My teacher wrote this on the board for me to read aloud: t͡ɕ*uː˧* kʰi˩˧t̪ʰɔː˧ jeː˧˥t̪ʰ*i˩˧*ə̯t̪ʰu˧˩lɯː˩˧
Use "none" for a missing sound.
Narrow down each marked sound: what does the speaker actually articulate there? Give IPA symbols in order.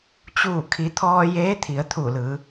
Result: uː˧˩, i˩˧

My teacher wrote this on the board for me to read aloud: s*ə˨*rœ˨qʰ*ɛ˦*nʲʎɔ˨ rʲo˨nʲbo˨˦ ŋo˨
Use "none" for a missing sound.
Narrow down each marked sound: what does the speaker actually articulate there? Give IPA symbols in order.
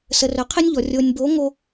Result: ə˨, ɛ˦

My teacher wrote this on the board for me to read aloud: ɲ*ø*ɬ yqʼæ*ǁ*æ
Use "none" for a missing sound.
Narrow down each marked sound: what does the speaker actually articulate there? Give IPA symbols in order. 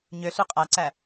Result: ø, ǀ

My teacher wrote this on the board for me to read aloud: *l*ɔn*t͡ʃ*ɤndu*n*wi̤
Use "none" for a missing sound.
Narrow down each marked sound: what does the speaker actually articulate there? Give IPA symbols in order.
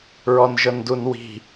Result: ɹ, ʒ, n

